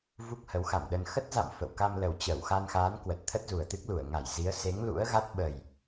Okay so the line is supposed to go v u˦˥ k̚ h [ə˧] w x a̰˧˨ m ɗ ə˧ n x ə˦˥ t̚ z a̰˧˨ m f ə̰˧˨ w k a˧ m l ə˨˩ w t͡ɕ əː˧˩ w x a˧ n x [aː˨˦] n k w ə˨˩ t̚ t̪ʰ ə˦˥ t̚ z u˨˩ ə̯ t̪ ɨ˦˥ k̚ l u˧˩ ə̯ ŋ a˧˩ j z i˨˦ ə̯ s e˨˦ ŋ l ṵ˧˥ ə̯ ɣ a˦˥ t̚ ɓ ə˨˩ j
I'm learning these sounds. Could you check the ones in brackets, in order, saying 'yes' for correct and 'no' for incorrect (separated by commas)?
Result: no, yes